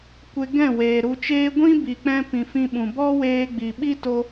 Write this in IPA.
kʷe˧ɡɛ̃˦˨weː˨ ɾu˧t͡ʃeː˦ ɡʷĩ˦ bi˨k͡pɛ̃˧pĩ˨ fĩ˧ɓũ˨bɔ˦ weː˧ɡ͡bi˨ɓi˦ to˦

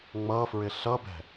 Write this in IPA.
ŋ͡mʌfɹɪ ɬʌbɛ̤

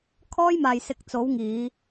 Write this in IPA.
kʰɔː˥jmaː˨jsɪ˨˥k̚ t͡so˨˥wŋiː˨˧

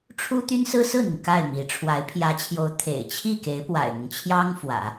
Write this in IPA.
ʈ͡ʂʰu˥t̪y˥n sɹ̩˥sɹ̩˥˩n̪i˩ŋ ka˥˩ɪ̯mi˧˥ ʈ͡ʂʰwa˧˥ɪ̯pʰjä˧˥t͡ɕʰjo˧˥ʊ̯ t̪ʰḛ˨˩ɪ̯ t͡ɕʰi˥˩ke˧˥ɪ̯ pwa̰˨˩ɪ̯n̪ʊ˦ŋ t͡ɕʰjɑ˥ŋfwä̰˨˩˦

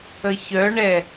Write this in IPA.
əçœɳɛ

